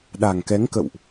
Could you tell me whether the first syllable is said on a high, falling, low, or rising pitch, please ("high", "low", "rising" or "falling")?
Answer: low